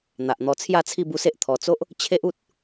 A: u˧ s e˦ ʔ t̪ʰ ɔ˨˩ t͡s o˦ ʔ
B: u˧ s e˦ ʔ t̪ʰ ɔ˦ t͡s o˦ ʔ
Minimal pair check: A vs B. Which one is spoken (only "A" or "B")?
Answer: A